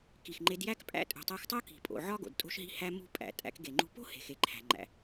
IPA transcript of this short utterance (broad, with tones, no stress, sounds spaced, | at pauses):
k i˨ x ŋ͡ǃ e˧ d j æ˦ k pʼ æ̰˦ tʼ ṳ˨ tˤ æ˧ x tˤ o˦ k i̤˨ pʼ o̰˨ ʕ ɒ˦ ɡ o̰˨ d tʼ o̤˦ ʃ ɦ i̤˦ h æ˦ m ṳ˦ pʼ æ̰˨ tʼ æ̰˧ k ɡ e˨ ŋ͡ǃ ṳ˦ p o̤˦ h e̤˨ x e˨ ǃʰ æ̤˨ ŋ͡ǃ æ̰˨